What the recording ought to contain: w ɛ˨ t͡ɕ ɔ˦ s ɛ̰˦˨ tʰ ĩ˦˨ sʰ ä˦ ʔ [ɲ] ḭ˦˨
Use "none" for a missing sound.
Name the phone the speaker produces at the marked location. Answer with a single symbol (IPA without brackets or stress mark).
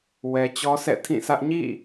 ɲ